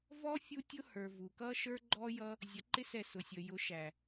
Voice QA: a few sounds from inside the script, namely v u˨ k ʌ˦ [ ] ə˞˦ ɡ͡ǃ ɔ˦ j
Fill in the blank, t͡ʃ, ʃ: ʃ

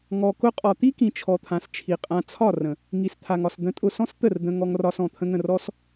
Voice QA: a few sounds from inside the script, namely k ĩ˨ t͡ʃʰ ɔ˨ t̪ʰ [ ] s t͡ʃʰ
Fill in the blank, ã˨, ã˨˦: ã˨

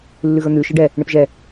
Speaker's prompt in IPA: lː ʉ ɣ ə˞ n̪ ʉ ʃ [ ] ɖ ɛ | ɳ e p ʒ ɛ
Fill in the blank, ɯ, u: ɯ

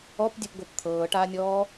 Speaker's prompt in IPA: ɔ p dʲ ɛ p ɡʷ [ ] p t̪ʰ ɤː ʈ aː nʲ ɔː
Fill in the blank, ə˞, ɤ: ɤ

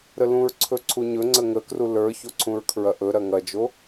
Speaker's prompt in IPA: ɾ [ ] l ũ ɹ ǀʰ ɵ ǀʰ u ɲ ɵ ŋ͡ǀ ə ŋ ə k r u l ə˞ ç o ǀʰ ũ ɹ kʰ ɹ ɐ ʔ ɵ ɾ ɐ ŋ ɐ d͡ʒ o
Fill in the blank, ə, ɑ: ə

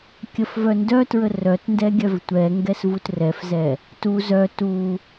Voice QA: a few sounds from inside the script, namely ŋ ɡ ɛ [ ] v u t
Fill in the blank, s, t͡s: s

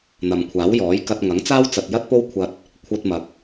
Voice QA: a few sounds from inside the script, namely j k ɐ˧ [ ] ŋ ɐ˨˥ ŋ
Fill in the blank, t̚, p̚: t̚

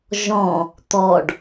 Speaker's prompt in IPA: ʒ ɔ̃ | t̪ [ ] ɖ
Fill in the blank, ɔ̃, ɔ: ɔ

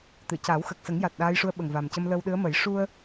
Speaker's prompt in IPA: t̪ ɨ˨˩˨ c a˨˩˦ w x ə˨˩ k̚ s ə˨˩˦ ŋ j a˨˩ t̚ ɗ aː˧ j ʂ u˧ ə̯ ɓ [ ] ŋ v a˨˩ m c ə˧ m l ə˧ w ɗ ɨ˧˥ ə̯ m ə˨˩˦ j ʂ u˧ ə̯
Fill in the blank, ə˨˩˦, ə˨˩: ə˨˩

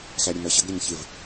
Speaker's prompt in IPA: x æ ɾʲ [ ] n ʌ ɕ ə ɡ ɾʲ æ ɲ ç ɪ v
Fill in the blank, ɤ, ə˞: ə˞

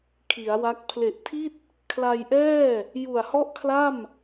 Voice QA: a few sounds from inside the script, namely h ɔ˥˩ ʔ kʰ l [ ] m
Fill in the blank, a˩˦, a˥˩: a˥˩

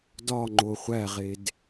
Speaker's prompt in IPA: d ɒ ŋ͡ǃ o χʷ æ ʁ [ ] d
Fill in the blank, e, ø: e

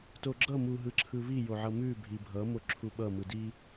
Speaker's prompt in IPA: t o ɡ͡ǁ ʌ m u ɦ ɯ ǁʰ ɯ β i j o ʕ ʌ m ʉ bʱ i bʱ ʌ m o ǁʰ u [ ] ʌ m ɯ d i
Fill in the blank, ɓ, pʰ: ɓ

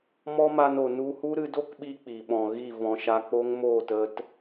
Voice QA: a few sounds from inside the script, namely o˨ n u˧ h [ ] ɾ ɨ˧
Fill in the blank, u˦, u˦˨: u˦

